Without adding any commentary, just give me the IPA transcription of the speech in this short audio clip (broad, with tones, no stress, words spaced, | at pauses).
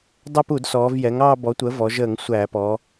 dˤɛ˥˧pu˧˩˧dsɔː˩˧v jɛ˩˥ŋɑː˥˧ bɔ˩˥tʷəː˩˥vɔ˩˧ ʒəː˧˩˧ŋ sʷæː˧˩˧pɔ˩˧